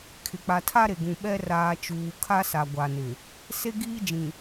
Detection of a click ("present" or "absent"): absent